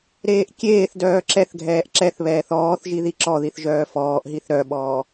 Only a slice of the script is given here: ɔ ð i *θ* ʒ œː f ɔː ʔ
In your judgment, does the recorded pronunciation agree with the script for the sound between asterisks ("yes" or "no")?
yes